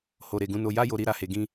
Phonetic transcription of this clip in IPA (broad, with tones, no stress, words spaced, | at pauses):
ho˨ ɾe˨ɡũ˨˦no˧ ja˦ jo˧ɾi˧ɾa˧he˨ ɡĩ˧